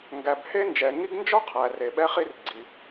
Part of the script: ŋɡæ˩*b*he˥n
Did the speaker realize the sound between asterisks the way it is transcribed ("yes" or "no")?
yes